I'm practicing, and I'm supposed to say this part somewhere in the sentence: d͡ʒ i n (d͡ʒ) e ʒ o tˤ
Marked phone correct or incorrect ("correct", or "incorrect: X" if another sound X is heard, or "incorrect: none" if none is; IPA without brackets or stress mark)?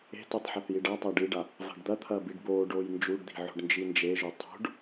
correct